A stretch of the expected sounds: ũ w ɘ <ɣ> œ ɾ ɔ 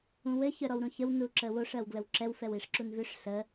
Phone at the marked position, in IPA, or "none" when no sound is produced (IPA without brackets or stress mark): ç